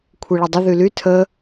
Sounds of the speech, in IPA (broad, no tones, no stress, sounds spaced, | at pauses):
kʷʰ i ɭ ə dˤ ə ð y l y tʰ ə